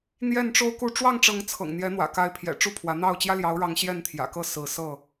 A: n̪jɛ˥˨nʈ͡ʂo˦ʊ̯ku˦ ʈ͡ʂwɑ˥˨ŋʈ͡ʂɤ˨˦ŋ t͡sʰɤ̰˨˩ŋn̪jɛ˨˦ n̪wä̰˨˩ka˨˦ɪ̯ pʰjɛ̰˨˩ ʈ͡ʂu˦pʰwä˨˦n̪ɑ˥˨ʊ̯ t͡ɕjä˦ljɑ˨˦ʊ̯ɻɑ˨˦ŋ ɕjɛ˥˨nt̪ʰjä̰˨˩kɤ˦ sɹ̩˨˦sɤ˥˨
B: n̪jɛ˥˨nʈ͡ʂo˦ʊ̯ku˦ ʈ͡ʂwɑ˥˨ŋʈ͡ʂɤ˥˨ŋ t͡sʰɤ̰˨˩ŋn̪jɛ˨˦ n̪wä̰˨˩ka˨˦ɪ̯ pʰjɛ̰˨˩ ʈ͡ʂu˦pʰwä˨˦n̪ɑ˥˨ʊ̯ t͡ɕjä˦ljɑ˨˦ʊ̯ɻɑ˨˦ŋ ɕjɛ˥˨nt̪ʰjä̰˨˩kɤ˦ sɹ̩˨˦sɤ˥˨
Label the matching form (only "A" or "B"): A